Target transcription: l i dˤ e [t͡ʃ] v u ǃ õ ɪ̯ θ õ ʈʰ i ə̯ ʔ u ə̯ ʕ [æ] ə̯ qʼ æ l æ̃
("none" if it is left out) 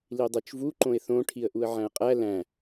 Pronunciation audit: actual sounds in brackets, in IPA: t͡ʃ, æ̃

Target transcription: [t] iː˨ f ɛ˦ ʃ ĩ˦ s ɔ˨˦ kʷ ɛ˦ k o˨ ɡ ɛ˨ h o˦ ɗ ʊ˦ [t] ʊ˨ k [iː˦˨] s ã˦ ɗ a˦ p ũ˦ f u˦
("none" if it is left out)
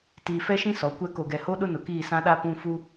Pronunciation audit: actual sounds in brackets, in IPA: t, n, iː˦˨

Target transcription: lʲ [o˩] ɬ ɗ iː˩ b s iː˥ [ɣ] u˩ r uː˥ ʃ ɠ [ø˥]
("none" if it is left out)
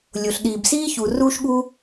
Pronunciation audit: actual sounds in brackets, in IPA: o˩, ç, u˥

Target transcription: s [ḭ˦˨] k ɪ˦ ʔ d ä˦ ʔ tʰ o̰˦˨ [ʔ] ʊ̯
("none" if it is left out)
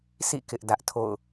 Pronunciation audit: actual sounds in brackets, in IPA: ḭ˦˨, none

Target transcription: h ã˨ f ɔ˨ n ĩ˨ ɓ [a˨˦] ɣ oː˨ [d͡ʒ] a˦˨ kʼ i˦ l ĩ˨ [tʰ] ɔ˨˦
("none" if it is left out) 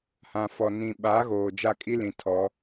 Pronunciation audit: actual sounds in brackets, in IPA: a˨˦, d͡ʒ, tʰ

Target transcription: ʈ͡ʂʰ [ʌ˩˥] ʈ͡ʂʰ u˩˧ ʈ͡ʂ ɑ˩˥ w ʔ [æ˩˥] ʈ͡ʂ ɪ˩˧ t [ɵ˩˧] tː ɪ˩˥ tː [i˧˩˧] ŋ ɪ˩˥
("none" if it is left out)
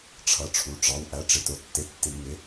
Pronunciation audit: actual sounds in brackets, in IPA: ʌ˩˥, æ˩˥, ʊ˩˧, i˧˩˧

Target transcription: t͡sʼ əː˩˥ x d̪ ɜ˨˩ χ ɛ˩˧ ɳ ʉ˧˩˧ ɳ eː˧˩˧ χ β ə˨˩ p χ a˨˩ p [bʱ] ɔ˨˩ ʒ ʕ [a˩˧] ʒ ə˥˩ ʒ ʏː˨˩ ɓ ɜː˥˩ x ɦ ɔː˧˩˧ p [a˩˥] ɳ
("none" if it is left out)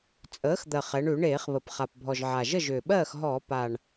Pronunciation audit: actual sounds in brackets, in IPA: bʱ, a˨˩, a˨˩

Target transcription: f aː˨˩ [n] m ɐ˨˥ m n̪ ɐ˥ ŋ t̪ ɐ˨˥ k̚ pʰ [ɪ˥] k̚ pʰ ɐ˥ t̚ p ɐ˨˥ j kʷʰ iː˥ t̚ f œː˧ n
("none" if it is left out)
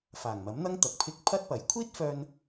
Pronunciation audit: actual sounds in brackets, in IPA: ŋ, ɪ˧

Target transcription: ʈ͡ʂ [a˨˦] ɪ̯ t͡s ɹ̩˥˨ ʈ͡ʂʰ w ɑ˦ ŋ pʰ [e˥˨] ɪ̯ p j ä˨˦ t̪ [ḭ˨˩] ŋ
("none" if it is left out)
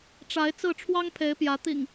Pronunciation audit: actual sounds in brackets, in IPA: a˨˦, e˨˦, ḭ˨˩

